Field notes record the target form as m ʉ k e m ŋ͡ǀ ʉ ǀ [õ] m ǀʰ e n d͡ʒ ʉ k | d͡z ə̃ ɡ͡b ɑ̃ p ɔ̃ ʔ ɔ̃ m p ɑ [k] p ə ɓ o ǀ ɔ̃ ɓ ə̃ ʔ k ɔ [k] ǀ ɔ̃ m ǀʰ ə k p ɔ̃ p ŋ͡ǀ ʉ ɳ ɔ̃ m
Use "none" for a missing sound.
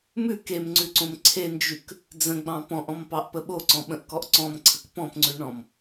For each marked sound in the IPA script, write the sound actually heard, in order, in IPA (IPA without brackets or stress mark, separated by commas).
õ, ʔ, ʔ